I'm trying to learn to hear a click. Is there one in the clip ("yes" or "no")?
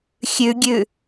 no